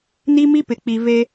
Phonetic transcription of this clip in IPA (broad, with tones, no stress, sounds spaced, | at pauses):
n i˦ m i˦ p ɪ˨ k͡p i˨ v e˦